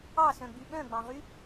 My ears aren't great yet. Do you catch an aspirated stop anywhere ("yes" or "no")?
no